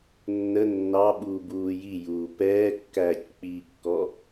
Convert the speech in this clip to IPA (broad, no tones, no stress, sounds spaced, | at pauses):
nː ə nː ɑ ɓ uː b uː j i j uː p ɛː kː æː c k͡p iː kː ɔ